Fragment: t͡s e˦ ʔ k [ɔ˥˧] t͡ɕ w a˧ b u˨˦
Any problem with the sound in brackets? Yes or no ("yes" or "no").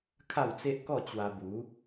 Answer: no